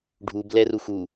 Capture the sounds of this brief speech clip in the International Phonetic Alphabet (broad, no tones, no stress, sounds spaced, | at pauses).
ɖʱ u b l ɛ r u x u